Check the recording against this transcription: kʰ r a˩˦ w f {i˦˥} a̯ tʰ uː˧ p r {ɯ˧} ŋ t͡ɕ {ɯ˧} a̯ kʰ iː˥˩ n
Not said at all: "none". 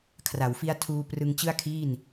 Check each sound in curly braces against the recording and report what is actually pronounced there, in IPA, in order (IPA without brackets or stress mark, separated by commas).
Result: i˦˥, ɯ˧, ɯ˥˩